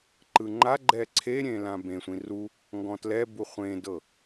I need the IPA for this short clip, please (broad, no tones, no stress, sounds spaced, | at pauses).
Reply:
ǃ ɯ ŋ͡ǃ a ɡ͡ǃ ɛ ǀʰ e ɾʲ ẽ l ã b ẽ sʷ ĩ r u | ŋ ɡ ɔ̃ t l ɛ b u χʷ ẽ d ɤ